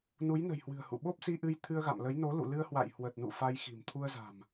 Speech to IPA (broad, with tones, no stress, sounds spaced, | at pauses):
n u˨˦ j n ə̤˨˩ j h w ɨ̤˨˩ ə̯ h ṵ˧˨ ɓ o˦˥ p̚ s i˧ ʔ ɨ˧ j t̪ʰ ɨ˧ ə̯ ɣ a̰˧˨ m l ə˨˦ j n o˨˦ l ṵ˧˨ l ɨ˧ ə̯ h w a̰˧˨ j h w ə˨˩ t̚ n ṵ˧˨ f a˧ j x i̤˨˩ m t̪ʰ u˧ ə̯ z a̤˨˩ m